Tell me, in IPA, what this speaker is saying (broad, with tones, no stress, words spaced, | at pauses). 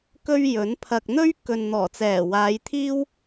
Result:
kɵ˧ɥ jɵ˨˥npʰɐ˧k̚ n̪ɵ˥ɥ kɵ˨nn̪ɔː˨˩t͡sɛː˨˩ waː˨˧jt̪ʰiː˥w